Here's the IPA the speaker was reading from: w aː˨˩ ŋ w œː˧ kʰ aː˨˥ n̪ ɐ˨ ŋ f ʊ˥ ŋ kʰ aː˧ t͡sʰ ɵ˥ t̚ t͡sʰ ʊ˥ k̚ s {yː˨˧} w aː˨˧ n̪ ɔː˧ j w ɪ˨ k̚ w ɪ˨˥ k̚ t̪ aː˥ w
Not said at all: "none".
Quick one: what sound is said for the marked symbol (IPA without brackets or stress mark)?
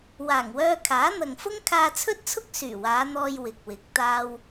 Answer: yː˨˩